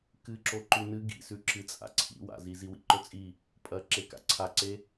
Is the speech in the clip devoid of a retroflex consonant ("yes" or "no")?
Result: yes